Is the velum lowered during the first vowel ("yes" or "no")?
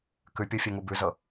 no